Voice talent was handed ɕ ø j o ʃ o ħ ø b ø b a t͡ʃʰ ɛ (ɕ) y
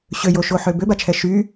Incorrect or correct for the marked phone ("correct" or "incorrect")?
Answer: incorrect